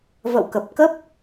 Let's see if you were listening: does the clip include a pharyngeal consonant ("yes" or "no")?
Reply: no